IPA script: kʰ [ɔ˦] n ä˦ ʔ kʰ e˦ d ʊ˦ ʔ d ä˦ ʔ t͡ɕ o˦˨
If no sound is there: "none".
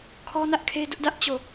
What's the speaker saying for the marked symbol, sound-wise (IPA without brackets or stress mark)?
ɔ˦